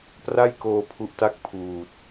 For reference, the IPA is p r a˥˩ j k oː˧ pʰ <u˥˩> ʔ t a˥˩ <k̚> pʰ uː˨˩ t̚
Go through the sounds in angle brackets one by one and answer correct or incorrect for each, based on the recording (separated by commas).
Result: incorrect, correct